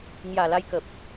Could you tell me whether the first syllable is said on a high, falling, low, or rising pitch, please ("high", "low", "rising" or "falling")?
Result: low